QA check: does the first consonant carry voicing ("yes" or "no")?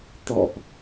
no